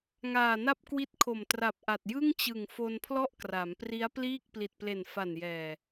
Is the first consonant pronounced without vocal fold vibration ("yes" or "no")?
no